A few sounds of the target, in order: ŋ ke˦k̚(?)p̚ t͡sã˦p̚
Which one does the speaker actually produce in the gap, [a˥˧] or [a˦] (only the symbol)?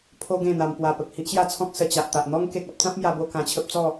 a˦